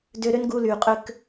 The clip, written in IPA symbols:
dø˧ɾʏ˦nɡu˧lyː˨ qʼʏ˦k

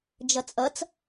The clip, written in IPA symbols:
d͡ʒʌt͡sʼʌt͡s

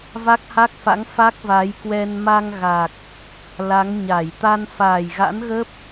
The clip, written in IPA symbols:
va˦˥k̚ha˦˥k̚fa̰˧˥ŋ fa˦˥k̚va˨˦jkwɛ˧n ma˧ŋ ɣa˨˩k̚ | la˨˦ŋɲa˧˩j t̪a˧nfaː˨˩jɣa̰˧˥nɣə˦˥p̚

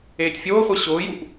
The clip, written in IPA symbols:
eːtʲfʲoːχʷe ɕʊːjuʔ

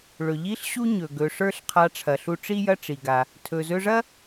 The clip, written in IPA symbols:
ɭɵ˩ʎi˥ɬɕu˥ɲɵ˩ ɡɵ˩ʂə˞˥ɬqʰa˧ ʈ͡ʂʰɐ˩ɬu˧ʈ͡ʂi˥ jɐ˥ʈ͡ʂi˩ ɡa˩ | tʰɵ˩zɵ˧ʐɐ˥

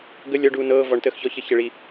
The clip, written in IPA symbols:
ɡə lʲɔɖuː nɤː vɔɳtəːx çɔçəçəɭi

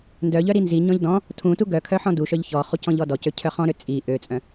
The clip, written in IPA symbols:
ndœʎœ ɾinziɲɔ̃ʎ dɔ̃ | tʰũtu ɡœkʰœ ħɔ̃duʃœʎ çɔχu cɔ̃ʎɔdɔcø cʰœχɔ̃ɾø t͡sʼi ʔøt͡sʼœ̃

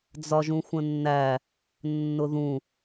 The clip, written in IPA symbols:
d͡zɒʒũxʷə̃nːæ | nːʊðũ

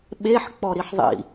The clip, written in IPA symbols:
ɓeħ k͡pɔɾiħðˤḭ

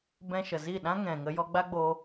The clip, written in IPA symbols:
bɛ̃˧ʃə˨zi˦˨ɗã˦ ŋɛ̃˨ ŋə˧jɔ˧ɡ͡ba˦ɡ͡boː˧

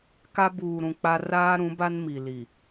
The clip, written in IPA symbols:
ka˦ buː˨ɾũ˨ k͡pa˦ raː˦ɾũ˨˦ba˦nmi˨ li˨

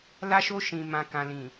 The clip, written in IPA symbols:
la˧ʃo˧ ʃĩ˨mã˨ kã˨lĩ˨

